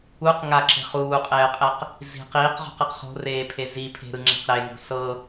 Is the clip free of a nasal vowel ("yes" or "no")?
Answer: yes